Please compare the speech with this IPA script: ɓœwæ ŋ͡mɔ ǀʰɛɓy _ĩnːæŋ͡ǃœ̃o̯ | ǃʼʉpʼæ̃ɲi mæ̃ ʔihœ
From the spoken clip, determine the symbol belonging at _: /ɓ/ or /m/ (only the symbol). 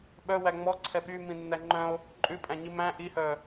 m